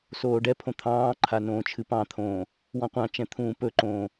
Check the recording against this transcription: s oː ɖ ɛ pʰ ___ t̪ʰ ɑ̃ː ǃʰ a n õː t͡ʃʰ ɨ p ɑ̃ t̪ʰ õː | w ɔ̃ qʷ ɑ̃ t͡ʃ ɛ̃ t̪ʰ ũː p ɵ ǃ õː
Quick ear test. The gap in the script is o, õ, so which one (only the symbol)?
õ